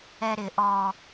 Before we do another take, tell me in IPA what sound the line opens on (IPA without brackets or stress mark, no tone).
ɛ